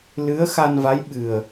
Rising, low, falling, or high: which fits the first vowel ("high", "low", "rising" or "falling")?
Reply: rising